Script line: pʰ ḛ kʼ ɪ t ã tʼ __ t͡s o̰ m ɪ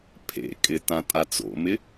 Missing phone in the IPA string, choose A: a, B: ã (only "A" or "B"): A